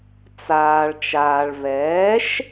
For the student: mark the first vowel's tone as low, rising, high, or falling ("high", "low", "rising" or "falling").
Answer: low